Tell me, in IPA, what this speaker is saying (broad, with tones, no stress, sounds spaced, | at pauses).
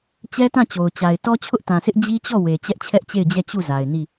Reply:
t͡ɕ ɛ˦ t ã˦˨ t͡ɕ o˨ ʊ̯ t͡ɕ a˨ ɪ̯ t ɔ˦ t͡ɕʰ ʊ˦ ʔ t ã˨ s ɪ˦ ʔ d͡ʑ i˦ t͡ɕ ɔ˦˨ w e˨ t͡ɕ ɛ˦ ʔ t͡ɕʰ ɛ˦ ʔ t͡ɕ e˦˨ ɪ̯ d͡ʑ ɛ˦˨ t͡ɕ u˦˨ z a˨ ɪ̯ n i˦˨